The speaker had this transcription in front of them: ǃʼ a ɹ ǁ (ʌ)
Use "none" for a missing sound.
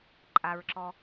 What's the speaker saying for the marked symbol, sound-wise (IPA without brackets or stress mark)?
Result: ɔ